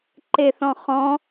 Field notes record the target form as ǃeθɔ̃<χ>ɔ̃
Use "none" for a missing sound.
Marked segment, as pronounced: χ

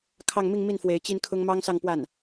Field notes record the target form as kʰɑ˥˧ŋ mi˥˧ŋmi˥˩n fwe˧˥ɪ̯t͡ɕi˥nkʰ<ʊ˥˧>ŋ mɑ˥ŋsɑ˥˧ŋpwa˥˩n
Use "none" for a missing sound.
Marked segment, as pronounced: ʊ˥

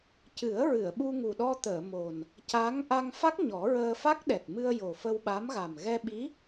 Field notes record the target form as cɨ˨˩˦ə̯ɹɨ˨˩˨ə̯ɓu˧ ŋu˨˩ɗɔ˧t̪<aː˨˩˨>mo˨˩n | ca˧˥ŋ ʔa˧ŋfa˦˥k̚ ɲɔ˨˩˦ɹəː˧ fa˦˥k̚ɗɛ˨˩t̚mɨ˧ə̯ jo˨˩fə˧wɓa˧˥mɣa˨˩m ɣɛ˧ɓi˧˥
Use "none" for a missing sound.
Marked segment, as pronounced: əː˨˩˨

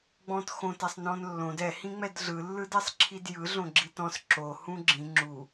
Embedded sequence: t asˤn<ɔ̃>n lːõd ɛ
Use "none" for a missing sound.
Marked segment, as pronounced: ɔ̃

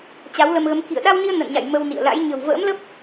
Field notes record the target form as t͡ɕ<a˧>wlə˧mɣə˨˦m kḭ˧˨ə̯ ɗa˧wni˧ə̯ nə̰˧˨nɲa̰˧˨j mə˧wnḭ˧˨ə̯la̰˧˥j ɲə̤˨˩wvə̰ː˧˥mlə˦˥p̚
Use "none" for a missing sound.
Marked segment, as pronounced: a˨˦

